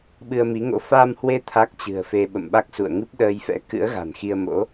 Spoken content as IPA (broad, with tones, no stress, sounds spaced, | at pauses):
ɓ ɨ˧ ə̯ m i˨˦ ŋ o̰˧˥ f a˧ m h w e˧ t̪ʰ a˦˥ k̚ t͡ɕ ɨ̤˨˩ ə̯ f e˧ ɓ ə̰˧˨ m ɓ a˦˥ k̚ s ṵ˧˨ ə̯ ŋ ɨ˦˥ p̚ ɗ əː˧ j f ɛ̰˧˥ k ɨ̰˧˥ ə̯ ɣ a̤˨˩ n x i˧ ə̯ m o̰˧˥